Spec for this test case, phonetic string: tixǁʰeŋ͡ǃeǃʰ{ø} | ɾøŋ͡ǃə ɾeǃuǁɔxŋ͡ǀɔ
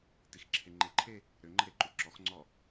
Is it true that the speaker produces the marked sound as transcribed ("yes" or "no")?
no